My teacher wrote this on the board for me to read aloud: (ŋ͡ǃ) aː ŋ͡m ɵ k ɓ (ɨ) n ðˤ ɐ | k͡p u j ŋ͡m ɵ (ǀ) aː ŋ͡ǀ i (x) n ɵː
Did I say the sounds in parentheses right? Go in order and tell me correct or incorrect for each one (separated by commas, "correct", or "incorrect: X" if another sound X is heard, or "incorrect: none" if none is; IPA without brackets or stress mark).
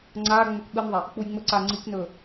incorrect: ŋ͡ǀ, correct, correct, incorrect: k